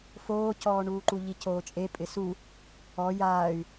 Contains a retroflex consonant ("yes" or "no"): yes